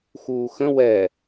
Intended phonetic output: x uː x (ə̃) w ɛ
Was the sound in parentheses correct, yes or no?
yes